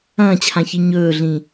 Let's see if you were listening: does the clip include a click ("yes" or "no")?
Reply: no